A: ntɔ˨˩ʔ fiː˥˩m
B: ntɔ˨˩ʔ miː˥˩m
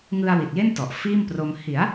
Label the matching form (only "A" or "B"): A